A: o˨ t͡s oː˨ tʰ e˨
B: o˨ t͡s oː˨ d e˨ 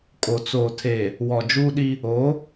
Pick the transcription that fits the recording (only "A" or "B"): A